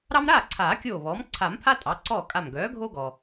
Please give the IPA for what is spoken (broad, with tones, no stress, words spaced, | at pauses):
ɾɑ˦mɾaː˥˩ǀʰaː˨˩˦kʲoː˧˩ βɔː˩˥m ǀʰa˨˩˦mpʰa˦ tʼɑ˩˥ǀɔː˥˩ kʼa˧˩m ɡœː˩˥ɡʱo˦ɡɔ˩